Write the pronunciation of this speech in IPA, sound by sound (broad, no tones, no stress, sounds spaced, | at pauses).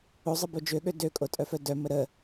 o zˤ ə b o d͡ʒ ø ɠ ø d ø kʼ o tʼ œ f œ d œ m ə ɾ ə